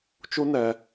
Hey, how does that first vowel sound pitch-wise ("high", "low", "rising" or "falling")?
high